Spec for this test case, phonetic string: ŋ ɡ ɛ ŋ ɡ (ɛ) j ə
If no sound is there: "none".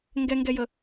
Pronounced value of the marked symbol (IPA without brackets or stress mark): ɛ